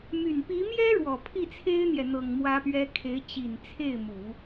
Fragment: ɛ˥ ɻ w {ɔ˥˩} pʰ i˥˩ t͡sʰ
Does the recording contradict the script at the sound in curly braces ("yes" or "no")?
yes